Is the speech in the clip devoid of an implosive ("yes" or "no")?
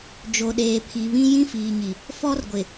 no